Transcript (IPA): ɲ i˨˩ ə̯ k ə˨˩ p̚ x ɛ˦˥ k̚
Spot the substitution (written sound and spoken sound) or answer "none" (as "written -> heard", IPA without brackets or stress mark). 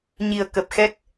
none